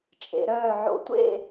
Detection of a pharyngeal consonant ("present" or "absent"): present